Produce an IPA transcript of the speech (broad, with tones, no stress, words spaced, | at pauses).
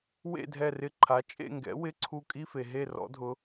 wḛ˥˨dʱɛ˧˩rɪ˧˩ ǃʰa˩˥ t͡ʃʼḛ˥˨ŋɡɛ̰˩˥ wɪ˧˥˧ǀʰu˧kʼi˧˥˧fe˩ ɦe˥˨rɔ̰˩˥dʱʊ˩˥